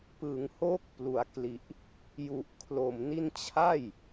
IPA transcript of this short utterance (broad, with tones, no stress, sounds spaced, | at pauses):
p ɯ˩˦ ŋ h o˦˥ k̚ p l u˩˦ a̯ k l i˨˩ ʔ | j u˨˩ ʔ kʰ l o˨˩ m n i˥˩ n t͡ɕʰ a˥˩ j